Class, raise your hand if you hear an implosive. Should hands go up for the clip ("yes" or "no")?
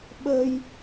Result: yes